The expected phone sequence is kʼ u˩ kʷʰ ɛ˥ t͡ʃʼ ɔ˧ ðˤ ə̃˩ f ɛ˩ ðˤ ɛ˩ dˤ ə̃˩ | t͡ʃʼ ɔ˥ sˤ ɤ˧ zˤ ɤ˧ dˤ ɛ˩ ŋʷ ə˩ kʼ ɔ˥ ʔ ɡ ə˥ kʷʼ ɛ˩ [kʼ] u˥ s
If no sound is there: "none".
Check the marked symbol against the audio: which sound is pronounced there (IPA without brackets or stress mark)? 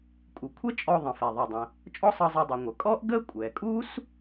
kʼ